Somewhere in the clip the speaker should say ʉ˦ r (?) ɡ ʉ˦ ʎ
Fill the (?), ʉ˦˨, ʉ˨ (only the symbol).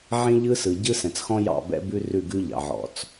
ʉ˦˨